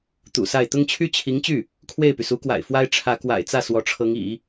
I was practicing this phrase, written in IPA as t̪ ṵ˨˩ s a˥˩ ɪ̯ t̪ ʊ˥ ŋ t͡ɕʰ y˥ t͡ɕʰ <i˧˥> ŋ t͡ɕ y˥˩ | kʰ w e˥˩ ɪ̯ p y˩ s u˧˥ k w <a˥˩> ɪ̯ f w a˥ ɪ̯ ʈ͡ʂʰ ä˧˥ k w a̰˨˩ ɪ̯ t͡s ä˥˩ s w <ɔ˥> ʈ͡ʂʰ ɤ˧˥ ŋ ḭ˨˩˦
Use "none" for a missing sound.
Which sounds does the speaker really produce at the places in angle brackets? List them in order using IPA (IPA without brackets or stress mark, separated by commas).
i˧˥, a̰˨˩, ɔ˧˥